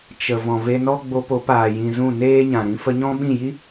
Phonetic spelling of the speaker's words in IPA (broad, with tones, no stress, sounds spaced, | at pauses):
t͡ʃ ə˨ v ɔ̃˨ v e˧ n ɔ˦ ɡ͡b o˧ p o˨˦ p aː˨ j ĩ˨ z ũ˦˨ n eː˦ ɲ ã˨ ɾ ĩ˧ f ə˧ ɲ ɔ̃˦ ɓ ĩ˦˨ j i˦